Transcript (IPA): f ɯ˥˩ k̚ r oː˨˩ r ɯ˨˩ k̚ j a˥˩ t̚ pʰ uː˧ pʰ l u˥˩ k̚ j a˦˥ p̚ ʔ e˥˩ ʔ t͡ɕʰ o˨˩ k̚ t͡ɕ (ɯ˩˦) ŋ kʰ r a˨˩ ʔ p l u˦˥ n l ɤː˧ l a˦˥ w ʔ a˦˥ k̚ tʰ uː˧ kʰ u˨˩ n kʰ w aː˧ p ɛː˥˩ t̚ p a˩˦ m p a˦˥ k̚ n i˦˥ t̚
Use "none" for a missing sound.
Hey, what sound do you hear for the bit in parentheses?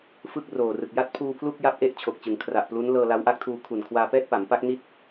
ɯ˩˦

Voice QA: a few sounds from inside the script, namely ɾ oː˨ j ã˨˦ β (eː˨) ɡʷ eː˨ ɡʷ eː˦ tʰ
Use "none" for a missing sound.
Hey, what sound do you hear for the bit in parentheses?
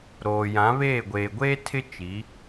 eː˦˨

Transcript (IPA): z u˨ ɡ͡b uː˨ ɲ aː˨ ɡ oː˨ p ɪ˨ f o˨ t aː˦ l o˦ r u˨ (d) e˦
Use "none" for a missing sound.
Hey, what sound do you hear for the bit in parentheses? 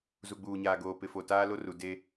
d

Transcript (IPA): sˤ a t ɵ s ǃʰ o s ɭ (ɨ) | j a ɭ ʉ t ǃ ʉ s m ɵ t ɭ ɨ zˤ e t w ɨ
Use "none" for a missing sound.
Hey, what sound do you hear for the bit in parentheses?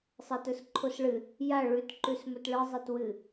ɨ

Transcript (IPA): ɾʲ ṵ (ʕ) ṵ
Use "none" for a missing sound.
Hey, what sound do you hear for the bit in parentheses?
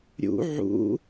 ʕ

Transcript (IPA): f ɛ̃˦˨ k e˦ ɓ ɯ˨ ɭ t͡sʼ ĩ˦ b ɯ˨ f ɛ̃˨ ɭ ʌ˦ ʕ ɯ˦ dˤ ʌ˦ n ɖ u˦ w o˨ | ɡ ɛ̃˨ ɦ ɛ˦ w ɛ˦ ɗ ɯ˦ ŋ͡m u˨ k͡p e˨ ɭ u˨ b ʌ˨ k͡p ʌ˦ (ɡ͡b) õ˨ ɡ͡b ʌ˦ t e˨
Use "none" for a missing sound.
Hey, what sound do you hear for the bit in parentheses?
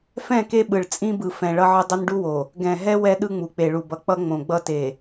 ŋ͡m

